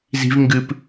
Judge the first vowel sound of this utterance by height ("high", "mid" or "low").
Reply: high